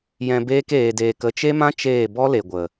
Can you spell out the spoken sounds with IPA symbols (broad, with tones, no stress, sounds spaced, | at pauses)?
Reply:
j ɛ̃˧ b eː˦ k eː˧ d eː˧ k ə˧ t͡ʃ e˦ m ã˦ t͡ʃ eː˦˨ b ɔ˦ l e˨ ɡʷ ə˨